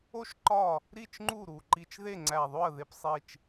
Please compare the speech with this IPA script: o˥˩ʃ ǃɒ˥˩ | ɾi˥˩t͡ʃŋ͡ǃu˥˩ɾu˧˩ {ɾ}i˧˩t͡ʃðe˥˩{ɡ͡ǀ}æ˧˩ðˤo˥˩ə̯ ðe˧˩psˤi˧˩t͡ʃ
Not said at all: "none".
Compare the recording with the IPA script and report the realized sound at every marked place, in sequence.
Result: ǃ, ŋ͡ǀ

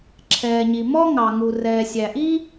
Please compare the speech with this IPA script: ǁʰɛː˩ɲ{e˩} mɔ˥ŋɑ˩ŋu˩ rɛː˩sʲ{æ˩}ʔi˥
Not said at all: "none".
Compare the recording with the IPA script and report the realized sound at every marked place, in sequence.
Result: i˩, æ˩

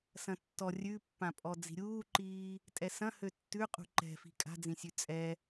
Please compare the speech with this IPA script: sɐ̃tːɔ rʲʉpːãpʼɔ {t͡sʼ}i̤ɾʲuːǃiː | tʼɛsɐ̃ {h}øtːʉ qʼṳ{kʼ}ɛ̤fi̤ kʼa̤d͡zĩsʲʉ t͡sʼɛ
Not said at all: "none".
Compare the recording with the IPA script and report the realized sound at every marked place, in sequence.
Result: d͡z, h, ǃ

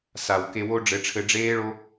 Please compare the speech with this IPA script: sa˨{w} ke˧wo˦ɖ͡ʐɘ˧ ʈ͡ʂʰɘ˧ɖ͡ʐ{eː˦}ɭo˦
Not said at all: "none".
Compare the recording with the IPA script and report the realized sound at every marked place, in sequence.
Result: w, eː˦

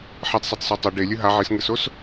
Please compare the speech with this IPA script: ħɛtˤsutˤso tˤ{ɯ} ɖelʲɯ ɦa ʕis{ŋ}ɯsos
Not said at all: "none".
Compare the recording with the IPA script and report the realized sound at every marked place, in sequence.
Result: ɯ, ŋ

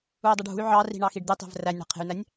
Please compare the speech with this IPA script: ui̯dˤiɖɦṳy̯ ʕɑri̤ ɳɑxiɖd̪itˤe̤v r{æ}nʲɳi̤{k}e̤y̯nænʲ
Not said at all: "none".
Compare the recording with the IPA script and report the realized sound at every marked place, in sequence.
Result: æ, qʰ

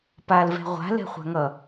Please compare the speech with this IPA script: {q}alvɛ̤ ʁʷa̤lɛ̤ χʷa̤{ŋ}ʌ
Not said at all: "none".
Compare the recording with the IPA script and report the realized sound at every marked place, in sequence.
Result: p, ŋ

